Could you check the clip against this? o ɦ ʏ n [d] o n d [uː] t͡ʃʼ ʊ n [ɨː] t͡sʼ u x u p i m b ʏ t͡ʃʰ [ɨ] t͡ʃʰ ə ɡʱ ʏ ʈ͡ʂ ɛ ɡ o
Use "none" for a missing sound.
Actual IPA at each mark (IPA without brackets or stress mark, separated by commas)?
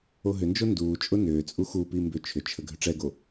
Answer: d͡ʒ, uː, ʏː, ʏ